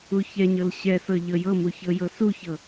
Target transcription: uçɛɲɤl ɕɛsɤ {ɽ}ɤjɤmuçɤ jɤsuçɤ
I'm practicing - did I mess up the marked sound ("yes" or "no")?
yes